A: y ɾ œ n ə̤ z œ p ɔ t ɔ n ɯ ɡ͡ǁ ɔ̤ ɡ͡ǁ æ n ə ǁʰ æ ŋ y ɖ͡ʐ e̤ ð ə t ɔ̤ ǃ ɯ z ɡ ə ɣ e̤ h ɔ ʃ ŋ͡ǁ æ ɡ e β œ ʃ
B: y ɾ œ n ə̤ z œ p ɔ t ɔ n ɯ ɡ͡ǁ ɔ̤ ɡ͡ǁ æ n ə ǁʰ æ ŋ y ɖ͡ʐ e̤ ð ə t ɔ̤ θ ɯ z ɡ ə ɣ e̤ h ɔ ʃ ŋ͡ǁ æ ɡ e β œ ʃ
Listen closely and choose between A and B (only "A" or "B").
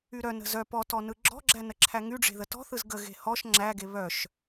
B